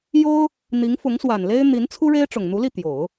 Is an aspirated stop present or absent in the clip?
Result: present